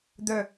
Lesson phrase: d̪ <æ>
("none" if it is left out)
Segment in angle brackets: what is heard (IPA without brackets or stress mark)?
œ